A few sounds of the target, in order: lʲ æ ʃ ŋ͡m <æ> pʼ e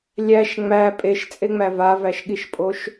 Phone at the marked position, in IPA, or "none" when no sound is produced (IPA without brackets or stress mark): æ